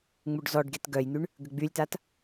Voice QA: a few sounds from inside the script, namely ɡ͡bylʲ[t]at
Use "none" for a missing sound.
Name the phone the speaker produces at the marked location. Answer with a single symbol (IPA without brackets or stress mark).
t